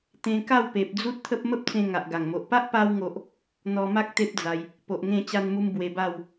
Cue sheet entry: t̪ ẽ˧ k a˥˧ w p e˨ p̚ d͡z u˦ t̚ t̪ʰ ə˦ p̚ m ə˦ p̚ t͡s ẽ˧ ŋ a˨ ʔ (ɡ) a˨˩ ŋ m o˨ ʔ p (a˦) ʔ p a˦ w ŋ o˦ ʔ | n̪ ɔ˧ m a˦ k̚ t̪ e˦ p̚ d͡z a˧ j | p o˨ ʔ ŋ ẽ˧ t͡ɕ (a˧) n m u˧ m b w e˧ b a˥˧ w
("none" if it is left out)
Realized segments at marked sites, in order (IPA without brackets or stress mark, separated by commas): ɡ, a˦, a˧